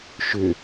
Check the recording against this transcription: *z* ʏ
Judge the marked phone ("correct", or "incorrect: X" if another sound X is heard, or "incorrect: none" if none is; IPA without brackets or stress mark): incorrect: ʃ